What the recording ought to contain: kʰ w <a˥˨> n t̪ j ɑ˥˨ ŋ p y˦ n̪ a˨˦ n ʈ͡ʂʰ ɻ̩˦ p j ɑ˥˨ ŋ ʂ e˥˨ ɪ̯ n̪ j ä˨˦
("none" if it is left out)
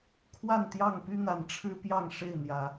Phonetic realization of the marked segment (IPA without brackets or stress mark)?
a˥˨